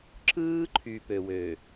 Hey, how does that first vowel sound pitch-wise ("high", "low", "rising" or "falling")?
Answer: high